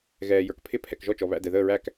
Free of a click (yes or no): yes